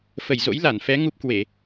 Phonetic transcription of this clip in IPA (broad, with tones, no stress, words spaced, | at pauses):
fə˧˩jzo̰˧˥jla˧˩nfɛ˨˦ ŋu˦˥p̚kwe˧˩˨